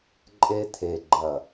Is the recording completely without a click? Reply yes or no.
no